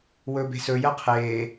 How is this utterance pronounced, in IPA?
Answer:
wɵbe̤sɵ jɜqʰeː

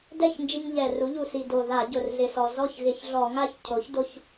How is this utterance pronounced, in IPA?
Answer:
dɛ˥˩ç nd͡ʒi˧ŋʎɛ˨˩ru˩˥ ʎu˨˩si˨˩do˨˩ ða˧˩˧ɟʊ˨˩rɮɪ˨˩sɔ˨˩ zɔ˥˩çɣɪ˧˩˧çɮɔ˧˩˧ŋa˥˩ç cʰo˩˥çdo˧ç

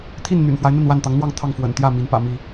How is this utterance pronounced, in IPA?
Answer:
t̪ʰi˥˨nn̪y̰˨˩nfwa˦ɪ̯ n̪ə˥˨nwa˥˨nt̪ɑ˨˦ŋn̪wɑ˥˨ŋ t̪ʰɑ˥˨ŋfwə̰˨˩n t̪jä˥˨ mi˨˦npä̰˨˩mi˥˨

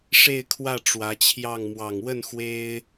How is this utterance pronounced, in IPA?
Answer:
ʂe˥˧ɪ̯kʰwä˥˩ ʈ͡ʂwä˧˥t͡ɕʰjɑ˥˩ŋ mwɑ˨˩ŋwə˥˩n xwe˥ɪ̯

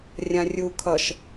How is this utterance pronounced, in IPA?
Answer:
rʲãrʲu kʰʌʃ

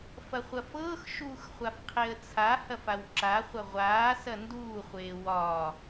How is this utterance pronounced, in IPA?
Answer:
fɐχʷɐfɤːx ʃuːxχʷafqʰeə̯t͡sʰa hɐfawǁa χʷɐʁʷaː sɐnduː χʷeːwɒ

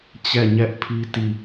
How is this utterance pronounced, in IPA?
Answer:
t͡ɕɛ˦˨ɲɛ˦ʔpʰi˦ ti˦˨

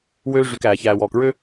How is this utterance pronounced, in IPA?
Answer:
wøː˦ ʐy˨k æː˨çæː˨wɔː˨k ɹø˦

